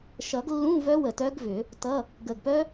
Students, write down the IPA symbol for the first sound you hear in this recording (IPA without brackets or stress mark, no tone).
ʃ